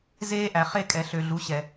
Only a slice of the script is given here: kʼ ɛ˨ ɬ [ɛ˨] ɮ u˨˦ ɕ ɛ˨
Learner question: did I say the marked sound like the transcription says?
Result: no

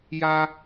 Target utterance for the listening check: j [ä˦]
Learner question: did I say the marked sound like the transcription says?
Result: yes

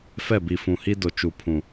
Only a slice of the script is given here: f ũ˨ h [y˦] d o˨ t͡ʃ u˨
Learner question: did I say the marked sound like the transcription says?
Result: no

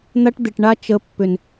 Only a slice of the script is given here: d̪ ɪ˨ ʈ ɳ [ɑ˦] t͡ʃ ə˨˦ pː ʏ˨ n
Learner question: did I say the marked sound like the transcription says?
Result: no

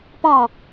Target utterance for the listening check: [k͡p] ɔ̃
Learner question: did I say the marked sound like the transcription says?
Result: no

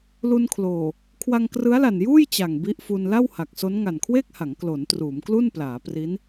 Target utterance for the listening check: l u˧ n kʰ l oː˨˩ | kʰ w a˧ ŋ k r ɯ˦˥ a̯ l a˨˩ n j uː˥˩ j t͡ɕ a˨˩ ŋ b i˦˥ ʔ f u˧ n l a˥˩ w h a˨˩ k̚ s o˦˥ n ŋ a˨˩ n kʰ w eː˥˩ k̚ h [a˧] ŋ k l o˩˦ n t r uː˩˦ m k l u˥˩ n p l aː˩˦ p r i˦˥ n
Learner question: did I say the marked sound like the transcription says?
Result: no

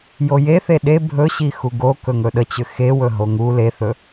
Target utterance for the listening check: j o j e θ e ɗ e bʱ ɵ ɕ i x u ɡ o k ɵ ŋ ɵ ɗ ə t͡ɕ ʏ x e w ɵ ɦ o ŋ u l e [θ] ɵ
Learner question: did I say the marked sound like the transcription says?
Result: yes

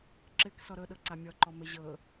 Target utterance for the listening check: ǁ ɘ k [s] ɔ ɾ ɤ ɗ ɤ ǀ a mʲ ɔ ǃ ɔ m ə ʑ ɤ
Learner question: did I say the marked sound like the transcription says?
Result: yes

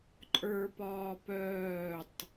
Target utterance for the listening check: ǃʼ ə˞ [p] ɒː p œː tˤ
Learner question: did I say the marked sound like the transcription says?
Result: yes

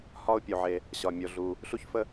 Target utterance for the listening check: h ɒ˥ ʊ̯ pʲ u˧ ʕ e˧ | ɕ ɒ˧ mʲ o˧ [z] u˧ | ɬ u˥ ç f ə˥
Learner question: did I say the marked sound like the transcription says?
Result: no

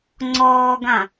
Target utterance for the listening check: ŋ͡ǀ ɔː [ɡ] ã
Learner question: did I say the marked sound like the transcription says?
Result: yes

